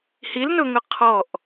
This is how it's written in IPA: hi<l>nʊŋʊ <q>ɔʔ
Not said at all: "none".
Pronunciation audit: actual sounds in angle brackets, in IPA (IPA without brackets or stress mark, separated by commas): l, qʰ